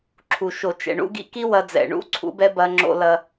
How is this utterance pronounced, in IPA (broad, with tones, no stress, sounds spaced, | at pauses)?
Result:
ǁʰ u˨ ʃ o˨ t͡ʃ ɛ̰˨ ɳ ṵ˦ ɡ ḭ˦ k i˦ w ɐ˦ d͡z ɛ̰˨ ɳ ṵ˦ ǀʰ ṵ˦ b ɛ˦ b ɐ˦ ŋ͡ǁ o̰˦ l ɐ˦